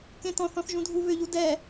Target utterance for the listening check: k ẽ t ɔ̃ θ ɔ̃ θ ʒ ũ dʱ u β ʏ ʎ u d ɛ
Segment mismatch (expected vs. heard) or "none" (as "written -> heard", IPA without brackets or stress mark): none